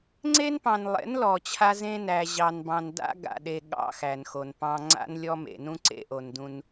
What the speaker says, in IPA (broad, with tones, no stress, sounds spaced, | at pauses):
ŋ͡ǀ e˦ n p ɑ̃˨ n lˠ ḛ˨˦ n l ɔ˨ t͡ɕʰ a˦ z ẽ˦ n æ˨ ʑ ɑ˨ n b ɑ̃˨ n d a̰˦ ɡ a̰˨ ɗ e˨ ɠ ɑ̰˦ x æ˨ n x o˨ n p ɑ̃˦ ŋ͡ǀ a̰˦ n lʲ ɔ˦ m ḛ˨ n ũ˦ ǀ ḛ˦ ʔ o˨ n d ũ˦ n